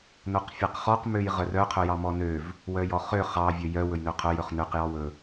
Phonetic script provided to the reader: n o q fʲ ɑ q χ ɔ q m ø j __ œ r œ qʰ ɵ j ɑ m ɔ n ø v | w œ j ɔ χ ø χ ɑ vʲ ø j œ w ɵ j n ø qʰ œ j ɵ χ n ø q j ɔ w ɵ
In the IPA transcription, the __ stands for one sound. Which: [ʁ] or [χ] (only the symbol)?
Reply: ʁ